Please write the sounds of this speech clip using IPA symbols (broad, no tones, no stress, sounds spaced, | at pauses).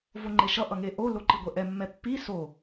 v o ŋ͡ǃ e ʃ ʌ ʔ ʌ ŋ e ʔ o l o ǃ i ɡʷ ɛ ʔ ɛ mː ɛ pː i s o